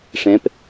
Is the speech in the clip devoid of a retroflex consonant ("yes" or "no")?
no